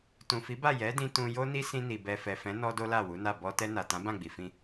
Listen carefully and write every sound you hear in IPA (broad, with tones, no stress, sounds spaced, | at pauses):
t ũ˨ f i˨˦ b a˦˨ j ɛ˨˦ d ĩ˧ t ũ˧ j o˦ n i˦ s ĩ˧ n i˨ b ɛ˨ f ɛ˨ f ɛ̃˨˦ n ɔ˧ d o˦ l a˦˨ w u˨˦ n a˦˨ b ɔ˧ t ɛ˧ n a˨ t ã˨˦ b ã˦˨ ɡ͡b i˨ f ĩ˧